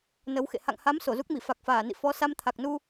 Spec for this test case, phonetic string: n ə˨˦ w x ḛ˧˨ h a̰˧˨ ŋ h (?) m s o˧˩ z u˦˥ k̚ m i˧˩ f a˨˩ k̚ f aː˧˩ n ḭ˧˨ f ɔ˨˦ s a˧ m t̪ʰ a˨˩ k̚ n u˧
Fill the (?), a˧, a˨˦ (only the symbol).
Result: a˨˦